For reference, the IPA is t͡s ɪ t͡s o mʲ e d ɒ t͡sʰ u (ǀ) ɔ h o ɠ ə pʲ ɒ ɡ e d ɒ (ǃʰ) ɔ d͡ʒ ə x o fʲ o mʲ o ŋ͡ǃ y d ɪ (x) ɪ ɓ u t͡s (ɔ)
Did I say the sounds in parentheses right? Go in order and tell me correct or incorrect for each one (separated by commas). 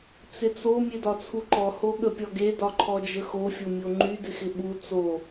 incorrect, correct, correct, incorrect